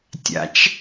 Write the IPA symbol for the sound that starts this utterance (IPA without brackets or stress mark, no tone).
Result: tʲ